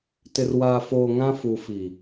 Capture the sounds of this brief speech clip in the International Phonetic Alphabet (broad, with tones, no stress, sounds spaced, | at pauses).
t ɪ˨ r w aː˨ f oː˨ ŋ ã˦ f u˨ f i˨